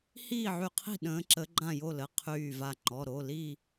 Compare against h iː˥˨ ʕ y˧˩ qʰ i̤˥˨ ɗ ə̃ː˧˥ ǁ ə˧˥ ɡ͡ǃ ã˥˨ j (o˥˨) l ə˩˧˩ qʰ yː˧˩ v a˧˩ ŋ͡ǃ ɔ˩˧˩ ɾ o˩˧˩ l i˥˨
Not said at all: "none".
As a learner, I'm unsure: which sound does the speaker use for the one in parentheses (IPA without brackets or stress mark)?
o˥˨